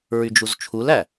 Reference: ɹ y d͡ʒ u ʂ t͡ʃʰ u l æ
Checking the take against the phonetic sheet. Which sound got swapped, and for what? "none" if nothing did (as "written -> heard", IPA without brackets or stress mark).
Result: ʂ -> z